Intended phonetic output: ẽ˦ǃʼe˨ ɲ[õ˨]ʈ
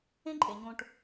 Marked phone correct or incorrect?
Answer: incorrect